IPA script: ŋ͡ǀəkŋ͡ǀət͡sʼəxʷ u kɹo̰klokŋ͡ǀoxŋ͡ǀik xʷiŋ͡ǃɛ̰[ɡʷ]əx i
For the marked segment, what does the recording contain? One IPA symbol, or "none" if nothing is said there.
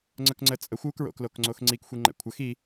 kʷʰ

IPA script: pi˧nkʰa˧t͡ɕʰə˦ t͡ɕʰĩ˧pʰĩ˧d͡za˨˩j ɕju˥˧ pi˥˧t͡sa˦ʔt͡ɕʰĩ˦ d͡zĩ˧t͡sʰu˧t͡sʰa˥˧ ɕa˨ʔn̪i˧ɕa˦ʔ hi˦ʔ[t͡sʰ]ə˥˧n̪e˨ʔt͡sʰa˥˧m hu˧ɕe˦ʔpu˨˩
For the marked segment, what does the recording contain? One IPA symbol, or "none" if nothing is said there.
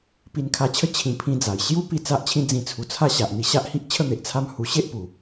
t͡ɕʰ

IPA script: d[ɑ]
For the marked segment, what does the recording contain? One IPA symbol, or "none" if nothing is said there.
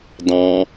ɑ̃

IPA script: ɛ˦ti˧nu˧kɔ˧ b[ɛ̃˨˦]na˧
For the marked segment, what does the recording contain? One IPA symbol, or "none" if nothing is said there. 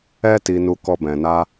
ɛ̃˨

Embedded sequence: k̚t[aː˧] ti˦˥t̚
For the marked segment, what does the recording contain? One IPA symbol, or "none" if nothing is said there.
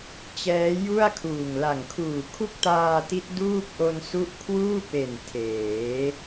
aː˧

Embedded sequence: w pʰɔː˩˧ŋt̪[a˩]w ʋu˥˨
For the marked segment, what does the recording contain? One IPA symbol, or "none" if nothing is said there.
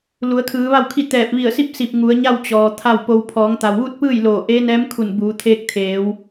a˩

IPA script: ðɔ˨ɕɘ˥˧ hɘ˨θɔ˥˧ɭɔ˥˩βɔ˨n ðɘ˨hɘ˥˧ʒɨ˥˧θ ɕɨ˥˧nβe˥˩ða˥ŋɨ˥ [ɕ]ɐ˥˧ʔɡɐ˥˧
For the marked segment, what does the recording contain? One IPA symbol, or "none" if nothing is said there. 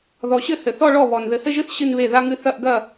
θ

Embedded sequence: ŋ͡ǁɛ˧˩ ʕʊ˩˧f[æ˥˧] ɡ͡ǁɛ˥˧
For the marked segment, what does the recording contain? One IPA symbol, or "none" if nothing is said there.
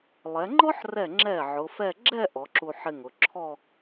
ɛ˥˧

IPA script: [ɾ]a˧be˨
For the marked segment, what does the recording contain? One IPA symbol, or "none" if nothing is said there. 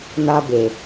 n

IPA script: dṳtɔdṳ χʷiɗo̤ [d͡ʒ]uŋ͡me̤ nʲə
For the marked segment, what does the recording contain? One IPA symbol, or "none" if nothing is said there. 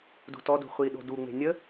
d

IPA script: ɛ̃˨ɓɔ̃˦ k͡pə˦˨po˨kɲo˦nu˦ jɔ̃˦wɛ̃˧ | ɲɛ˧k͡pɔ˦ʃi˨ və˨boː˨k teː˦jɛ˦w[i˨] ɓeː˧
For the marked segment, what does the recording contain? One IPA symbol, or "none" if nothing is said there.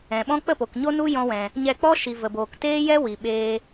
i˨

